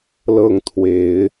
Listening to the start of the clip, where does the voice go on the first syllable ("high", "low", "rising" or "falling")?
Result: falling